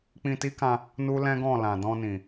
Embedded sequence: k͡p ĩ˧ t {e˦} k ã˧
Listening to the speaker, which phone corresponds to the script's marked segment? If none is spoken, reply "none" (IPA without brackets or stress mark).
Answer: i˦